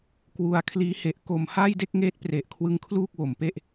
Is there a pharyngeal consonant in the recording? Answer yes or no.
no